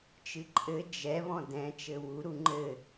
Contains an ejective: yes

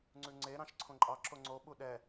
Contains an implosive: yes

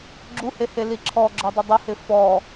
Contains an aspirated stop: yes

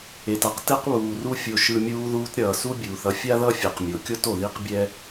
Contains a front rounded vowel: no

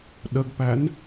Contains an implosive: yes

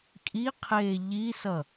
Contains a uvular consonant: yes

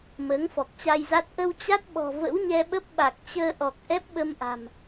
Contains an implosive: yes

